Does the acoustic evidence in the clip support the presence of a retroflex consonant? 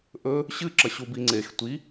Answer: no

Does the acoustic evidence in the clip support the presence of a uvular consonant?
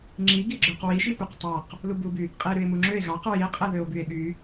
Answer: yes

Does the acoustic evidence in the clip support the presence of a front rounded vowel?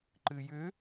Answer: yes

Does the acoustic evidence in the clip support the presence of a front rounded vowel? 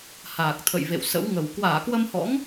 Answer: no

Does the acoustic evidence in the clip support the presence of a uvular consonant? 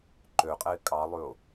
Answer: yes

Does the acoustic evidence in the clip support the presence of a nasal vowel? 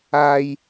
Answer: no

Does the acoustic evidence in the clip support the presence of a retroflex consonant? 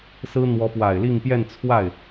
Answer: no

